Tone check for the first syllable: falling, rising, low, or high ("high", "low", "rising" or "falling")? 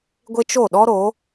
high